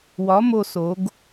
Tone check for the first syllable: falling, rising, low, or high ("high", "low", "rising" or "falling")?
rising